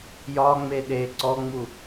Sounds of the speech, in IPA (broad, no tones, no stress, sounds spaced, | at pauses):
j ɒ ŋ͡m e ɗ e ǀ ɔ ŋ͡m u